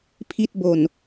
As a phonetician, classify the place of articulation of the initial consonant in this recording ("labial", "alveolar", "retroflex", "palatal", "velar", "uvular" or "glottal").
labial